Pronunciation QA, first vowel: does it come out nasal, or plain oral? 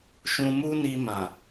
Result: nasal